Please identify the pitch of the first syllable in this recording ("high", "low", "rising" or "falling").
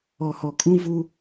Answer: low